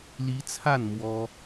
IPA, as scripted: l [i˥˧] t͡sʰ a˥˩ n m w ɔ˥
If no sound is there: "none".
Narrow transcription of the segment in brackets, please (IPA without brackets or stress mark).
i˧˥